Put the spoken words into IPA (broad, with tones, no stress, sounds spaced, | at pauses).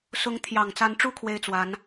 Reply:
s ʊ˧˥ ŋ t̪ʰ j ɑ˨˩ ŋ t͡s a˧˥ n ʈ͡ʂ u˥˧ kʰ w e˥˩ ɪ̯ t͡s w a˧˥ n